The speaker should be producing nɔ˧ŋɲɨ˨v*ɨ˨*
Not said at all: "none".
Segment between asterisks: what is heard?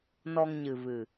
ɨ˨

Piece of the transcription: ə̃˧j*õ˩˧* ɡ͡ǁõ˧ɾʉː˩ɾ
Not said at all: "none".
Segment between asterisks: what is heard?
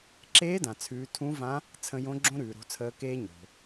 õ˧˥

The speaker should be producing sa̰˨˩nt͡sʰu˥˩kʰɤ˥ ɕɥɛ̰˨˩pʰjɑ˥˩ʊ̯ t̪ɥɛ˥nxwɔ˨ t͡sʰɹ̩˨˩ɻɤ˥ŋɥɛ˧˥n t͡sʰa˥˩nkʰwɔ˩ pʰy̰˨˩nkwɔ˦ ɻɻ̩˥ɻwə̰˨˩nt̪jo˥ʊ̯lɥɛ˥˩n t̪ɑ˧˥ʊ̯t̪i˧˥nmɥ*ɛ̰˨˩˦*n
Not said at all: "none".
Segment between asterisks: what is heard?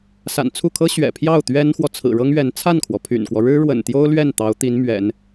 ɛ̰˨˩˦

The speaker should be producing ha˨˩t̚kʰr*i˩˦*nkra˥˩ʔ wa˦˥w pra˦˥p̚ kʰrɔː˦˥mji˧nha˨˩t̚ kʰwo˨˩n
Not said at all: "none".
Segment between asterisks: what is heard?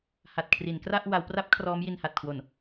i˩˦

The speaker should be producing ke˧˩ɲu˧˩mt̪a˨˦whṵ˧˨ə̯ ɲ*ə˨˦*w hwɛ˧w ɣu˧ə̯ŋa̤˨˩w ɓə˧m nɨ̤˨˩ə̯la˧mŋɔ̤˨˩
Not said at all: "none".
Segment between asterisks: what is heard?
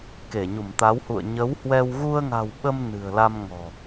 ə˨˦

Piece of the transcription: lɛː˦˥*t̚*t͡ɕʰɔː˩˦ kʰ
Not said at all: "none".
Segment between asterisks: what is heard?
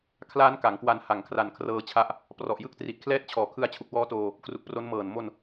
t̚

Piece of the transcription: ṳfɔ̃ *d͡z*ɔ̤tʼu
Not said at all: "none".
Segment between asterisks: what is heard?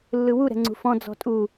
d͡z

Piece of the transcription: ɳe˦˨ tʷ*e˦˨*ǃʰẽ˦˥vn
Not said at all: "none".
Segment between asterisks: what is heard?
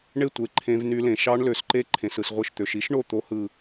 e˦˨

